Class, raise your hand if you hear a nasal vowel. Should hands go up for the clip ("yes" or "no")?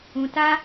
yes